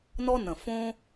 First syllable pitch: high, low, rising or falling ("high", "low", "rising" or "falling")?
high